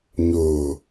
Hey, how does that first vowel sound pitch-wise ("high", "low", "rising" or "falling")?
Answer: low